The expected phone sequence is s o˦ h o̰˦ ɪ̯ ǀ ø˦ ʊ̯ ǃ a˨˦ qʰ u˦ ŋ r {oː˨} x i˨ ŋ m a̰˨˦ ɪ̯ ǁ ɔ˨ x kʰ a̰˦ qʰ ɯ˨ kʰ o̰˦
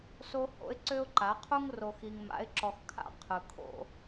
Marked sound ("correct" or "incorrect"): incorrect